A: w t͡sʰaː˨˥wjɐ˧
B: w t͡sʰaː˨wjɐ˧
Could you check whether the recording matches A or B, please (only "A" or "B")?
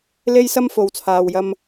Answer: B